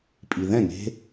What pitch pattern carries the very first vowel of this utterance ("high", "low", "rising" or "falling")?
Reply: low